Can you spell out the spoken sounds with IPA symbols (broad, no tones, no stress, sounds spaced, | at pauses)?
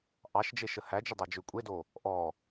ʔ ɑ ʃ d͡ʒ e ʃ ə h æ d͡ʒ ʊ dˤ ɑ d͡ʒ ʏ kʷʼ e d o | ʔ ɔ